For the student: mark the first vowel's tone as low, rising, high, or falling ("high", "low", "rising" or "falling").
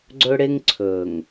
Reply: high